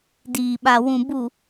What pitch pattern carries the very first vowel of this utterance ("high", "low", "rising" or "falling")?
low